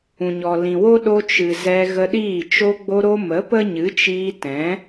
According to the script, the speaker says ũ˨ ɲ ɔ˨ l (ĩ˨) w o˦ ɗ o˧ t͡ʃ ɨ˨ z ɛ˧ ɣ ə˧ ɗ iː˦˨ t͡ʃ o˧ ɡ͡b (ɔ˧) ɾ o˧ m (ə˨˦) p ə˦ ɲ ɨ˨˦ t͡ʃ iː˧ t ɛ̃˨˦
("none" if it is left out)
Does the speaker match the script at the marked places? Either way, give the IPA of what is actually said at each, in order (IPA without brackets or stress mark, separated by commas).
ĩ˨, o˧, ə˨˦